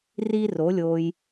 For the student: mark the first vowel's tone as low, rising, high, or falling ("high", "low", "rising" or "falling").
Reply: high